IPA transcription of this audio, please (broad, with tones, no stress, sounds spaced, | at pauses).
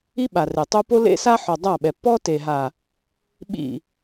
i˦ ɓ a˨ r e˨ tˤ o˦ p o˦ l ḛ˦ s a˦ ħ ɔ˨ dˤ a˦˨ ɓ ɛ˨ pː ɔ˦ t e˨ ɦ a˨ | ɓ ḭ˦˨